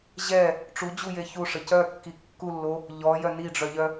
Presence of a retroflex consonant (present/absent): present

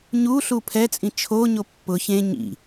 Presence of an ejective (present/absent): present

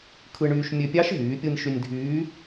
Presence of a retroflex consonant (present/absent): present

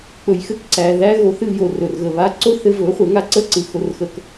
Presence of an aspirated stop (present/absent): absent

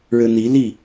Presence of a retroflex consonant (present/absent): present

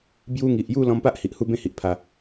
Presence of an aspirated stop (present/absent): present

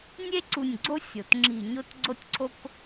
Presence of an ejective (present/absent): absent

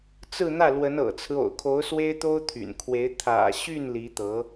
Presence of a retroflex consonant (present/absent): absent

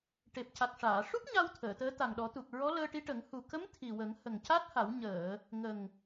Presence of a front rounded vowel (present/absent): absent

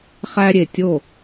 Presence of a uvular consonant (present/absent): present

